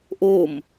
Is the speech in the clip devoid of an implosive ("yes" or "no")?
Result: yes